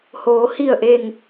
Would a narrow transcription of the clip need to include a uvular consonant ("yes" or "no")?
no